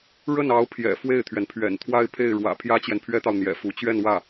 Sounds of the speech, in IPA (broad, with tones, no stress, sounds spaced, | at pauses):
ɻ ə˥˩ n ɑ˧˥ ʊ̯ pʰ j ɛ̰˨˩ f w e˥˩ ɪ̯ t̪ʰ ɥ ɛ˩ n pʰ ɥ ɛ̰˨˩ n t̪ʰ w a˥˧ ɪ̯ pʰ e˥˩ ɪ̯ ɻ w ä̰˨˩ pʰ j ä˥ t͡ɕ j ɛ˨ n pʰ ɥ ɛ˥ t̪ ɑ˨ ʊ̯ n̪ j ɛ̰˨˩ f u˧˥ t͡ɕ ɥ ɛ˥˧ n w ä˥˩